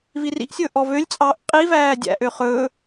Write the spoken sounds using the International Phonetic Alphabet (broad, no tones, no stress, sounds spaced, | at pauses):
v i r ḭ ʔ sʲ ɵː ʔ ɔ v ø lʲ t͡sʼ ɑː ʔ qʼ i v æː dʲ æ̰ ʔ ø χ ɵː